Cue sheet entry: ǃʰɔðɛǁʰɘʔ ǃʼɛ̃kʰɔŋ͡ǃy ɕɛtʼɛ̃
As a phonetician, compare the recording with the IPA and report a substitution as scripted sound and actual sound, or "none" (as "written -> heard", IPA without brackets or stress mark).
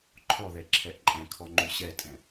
ɘ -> ɛ